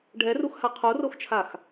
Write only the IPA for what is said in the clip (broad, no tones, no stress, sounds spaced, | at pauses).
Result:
ɖʱ ɛ r u x h a qʰ o r o x t͡ʃʰ a x